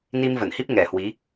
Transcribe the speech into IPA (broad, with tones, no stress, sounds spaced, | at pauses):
n i˧ m v ə˧˩ n h i˦˥ p̚ ŋ ɛ˨˩ h w i˨˦